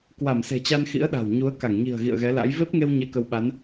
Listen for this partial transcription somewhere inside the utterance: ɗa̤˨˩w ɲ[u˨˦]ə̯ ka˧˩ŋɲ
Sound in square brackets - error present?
no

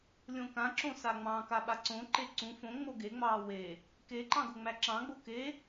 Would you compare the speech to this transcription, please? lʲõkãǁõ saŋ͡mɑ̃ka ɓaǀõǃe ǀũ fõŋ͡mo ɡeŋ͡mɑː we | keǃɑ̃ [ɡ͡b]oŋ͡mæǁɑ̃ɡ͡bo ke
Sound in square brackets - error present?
yes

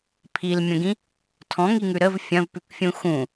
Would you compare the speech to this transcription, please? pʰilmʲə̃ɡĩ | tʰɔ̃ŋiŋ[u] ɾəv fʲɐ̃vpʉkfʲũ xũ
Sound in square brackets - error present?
yes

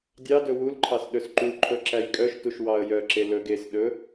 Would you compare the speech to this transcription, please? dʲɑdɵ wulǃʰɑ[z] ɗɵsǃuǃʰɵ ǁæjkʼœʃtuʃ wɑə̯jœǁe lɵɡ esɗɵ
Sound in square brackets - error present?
yes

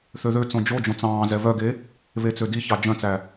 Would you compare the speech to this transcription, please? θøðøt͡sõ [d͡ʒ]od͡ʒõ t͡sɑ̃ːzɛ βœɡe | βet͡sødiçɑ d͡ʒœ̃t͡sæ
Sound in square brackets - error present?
no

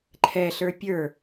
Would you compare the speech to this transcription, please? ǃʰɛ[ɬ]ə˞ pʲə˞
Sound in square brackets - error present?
no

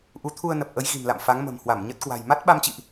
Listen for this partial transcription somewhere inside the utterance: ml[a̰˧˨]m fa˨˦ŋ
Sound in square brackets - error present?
no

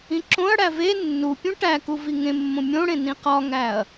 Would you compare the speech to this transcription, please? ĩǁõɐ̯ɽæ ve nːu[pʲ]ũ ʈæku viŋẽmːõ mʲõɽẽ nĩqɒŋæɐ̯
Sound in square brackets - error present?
no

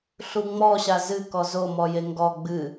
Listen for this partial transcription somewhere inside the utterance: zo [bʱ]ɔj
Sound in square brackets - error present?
yes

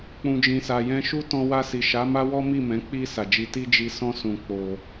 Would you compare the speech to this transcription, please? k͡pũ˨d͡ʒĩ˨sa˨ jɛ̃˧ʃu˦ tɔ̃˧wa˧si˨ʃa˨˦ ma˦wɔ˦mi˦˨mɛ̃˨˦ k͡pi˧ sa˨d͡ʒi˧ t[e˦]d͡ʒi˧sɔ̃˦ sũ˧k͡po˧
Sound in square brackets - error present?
yes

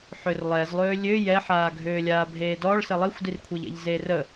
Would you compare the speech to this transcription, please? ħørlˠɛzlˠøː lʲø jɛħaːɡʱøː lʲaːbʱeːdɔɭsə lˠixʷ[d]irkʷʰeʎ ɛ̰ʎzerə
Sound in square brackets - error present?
no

